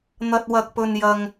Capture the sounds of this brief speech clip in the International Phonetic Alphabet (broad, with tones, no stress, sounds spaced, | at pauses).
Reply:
n̪ ɐ˥ t̚ w ɐ˥ k̚ p ɵ˥ n j ɐ˥ ŋ